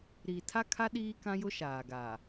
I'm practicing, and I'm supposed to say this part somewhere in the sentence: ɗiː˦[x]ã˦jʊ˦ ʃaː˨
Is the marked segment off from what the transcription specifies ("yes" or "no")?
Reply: yes